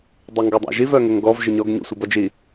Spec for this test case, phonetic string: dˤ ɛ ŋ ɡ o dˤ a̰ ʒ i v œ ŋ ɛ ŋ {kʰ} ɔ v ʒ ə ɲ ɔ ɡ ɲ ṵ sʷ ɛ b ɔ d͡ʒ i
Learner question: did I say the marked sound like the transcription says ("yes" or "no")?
no